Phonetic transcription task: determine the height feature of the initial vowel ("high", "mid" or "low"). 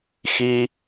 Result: high